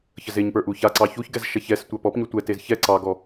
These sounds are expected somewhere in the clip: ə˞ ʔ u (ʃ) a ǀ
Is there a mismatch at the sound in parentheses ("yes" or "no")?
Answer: yes